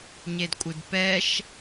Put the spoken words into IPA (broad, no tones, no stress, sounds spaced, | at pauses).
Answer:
ɲ e d kʷʼ ɨ d p ɛ ʃ